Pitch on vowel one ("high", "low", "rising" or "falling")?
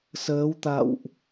rising